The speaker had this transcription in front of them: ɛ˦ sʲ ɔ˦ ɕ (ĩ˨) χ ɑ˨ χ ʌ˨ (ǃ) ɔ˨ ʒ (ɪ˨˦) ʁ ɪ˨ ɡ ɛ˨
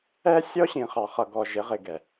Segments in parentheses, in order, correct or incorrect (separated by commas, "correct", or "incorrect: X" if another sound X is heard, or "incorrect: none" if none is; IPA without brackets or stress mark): correct, incorrect: ɡ, correct